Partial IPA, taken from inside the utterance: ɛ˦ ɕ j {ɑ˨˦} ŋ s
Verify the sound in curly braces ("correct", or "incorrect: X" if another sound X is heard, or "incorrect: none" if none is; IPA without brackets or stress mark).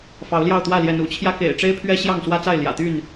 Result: incorrect: ɑ˥˨